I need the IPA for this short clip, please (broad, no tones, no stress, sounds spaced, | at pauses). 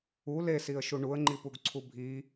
u l e s i ə̯ ʃ u ɳ u ə̯ ŋ͡ǃ i p u ɡ ǀʰ u bʱ i